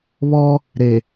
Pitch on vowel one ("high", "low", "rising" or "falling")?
high